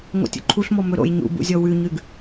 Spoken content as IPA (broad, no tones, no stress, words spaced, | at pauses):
ŋo̰tʲo̰ǃʰuɬmɔ mɵɾo̰j ɲṵbṵzʲɔ wʉɲʉɡ